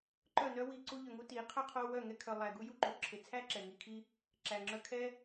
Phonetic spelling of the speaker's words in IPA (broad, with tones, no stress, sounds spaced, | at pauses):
ǃ œ˦˨ n œ˦ w i˧ ǀ u˧ ʎ œ˨ ŋ u˧ t i˨˦ qʰ œ˦ qʰ o˧ w œ˦˨ ŋ ɛ˧ kʰ œ˨ lˠ æ˨ ɡ u˦ j u˦ ǃ u˨ ǁʰ e˨ t͡sʰ æ˦ ǁ ɛ˨ ŋ i˧ kʰ i˦ | ǁ æ˨ ŋ͡ǁ œ˧ kʰ ɛ˦